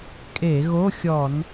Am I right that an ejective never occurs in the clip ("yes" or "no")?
no